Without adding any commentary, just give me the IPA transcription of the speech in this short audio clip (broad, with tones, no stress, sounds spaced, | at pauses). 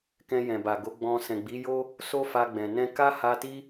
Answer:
k ɛ̃˧ j ɛ̃˨ b a˨ ɡ o˨˦ ɡ͡b ɔ̃˧ s ɛ̃˨ ɡ͡b i˨˦ j o˦ | s o˦ f a˧ ɡ͡b ɛ̃˨ n ɛ̃˧ k a˦ h a˧ t i˦